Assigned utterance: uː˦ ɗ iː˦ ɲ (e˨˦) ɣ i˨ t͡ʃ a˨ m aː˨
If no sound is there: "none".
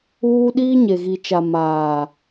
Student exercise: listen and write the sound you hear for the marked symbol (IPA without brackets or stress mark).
e˨